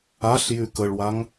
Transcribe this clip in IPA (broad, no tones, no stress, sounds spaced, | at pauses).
a ɬ j y k ə ɭ w a ŋ